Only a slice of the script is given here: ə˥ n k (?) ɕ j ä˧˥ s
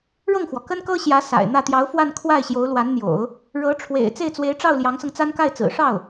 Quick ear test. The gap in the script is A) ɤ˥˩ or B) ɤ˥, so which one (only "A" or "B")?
B